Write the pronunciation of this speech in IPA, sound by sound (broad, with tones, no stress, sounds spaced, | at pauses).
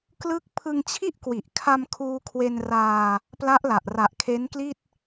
k l ɯ˥˩ k̚ pʰ ɯ˧ ŋ t͡ɕʰ i˥˩ ʔ k w i˨˩ ʔ kʰ a˧ m kʰ uː˧ kʰ w e˧ n r aː˧ | p l a˦˥ ʔ l a˨˩ ʔ r a˨˩ ʔ kʰ e˦˥ n k l i˥˩ t̚